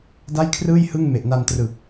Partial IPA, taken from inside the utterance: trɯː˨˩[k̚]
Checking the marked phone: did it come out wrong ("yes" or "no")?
no